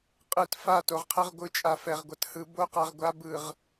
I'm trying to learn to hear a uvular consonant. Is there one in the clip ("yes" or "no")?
yes